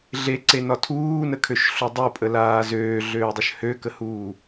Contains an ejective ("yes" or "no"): yes